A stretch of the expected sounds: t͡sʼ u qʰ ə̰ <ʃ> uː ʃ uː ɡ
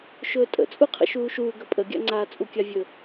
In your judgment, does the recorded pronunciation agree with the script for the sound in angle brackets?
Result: yes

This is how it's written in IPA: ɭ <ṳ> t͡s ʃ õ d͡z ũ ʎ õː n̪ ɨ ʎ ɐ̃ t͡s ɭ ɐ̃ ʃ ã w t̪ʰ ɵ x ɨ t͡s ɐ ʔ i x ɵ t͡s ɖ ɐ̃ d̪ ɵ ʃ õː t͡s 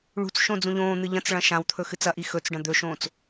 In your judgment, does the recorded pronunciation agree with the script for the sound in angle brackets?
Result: yes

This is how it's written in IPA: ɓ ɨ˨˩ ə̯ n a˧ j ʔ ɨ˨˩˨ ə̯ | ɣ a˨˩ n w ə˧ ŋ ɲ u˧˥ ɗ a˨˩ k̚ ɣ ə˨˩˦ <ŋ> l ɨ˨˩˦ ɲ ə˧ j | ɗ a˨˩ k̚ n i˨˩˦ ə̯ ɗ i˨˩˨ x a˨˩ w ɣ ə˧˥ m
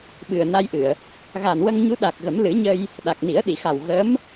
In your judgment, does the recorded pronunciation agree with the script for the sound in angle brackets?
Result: no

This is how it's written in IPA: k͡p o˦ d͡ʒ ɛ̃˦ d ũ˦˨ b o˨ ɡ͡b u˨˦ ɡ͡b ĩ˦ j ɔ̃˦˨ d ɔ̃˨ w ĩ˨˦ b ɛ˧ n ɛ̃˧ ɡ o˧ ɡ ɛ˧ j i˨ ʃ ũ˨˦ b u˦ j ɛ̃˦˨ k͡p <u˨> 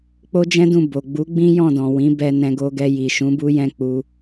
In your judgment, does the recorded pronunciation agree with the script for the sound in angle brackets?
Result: no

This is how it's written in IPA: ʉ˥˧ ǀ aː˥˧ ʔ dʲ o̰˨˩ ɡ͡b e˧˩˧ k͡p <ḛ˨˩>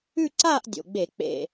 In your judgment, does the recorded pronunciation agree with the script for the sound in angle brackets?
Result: yes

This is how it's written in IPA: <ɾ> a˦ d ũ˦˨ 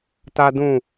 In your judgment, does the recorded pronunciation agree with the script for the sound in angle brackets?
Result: no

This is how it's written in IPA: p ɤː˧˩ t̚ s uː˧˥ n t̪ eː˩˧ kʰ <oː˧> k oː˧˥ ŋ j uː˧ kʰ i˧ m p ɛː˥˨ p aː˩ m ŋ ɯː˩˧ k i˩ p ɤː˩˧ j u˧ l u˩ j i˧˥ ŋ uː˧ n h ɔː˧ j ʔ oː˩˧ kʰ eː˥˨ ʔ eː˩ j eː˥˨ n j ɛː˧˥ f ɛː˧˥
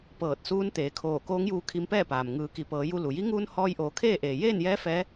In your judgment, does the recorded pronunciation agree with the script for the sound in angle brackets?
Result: no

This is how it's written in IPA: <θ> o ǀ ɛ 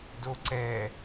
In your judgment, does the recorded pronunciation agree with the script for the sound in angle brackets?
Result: no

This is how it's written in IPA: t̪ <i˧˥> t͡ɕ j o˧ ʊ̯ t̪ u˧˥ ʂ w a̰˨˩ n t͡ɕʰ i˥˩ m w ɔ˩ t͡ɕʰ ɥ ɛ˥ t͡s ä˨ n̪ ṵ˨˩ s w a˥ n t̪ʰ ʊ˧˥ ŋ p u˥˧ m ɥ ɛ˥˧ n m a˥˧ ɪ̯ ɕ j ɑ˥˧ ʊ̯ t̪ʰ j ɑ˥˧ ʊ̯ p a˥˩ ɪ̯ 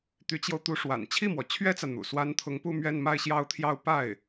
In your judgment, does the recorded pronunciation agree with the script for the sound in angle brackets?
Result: no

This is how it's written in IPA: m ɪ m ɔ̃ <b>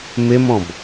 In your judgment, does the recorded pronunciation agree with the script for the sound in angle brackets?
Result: yes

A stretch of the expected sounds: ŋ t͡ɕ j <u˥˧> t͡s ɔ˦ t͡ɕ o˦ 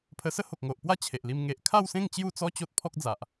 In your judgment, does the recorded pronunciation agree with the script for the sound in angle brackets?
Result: yes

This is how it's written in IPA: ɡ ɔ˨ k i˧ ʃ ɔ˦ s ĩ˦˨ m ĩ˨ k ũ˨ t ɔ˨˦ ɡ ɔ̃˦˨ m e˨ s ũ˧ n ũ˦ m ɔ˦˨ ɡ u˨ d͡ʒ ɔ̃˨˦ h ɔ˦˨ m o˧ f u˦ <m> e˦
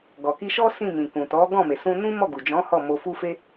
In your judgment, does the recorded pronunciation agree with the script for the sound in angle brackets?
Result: no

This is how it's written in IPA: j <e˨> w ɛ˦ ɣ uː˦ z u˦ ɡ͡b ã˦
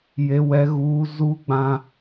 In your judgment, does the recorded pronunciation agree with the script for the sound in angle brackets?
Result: no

